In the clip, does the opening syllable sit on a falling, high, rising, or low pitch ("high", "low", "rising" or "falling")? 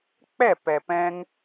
falling